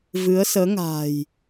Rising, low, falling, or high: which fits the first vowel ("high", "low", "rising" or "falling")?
rising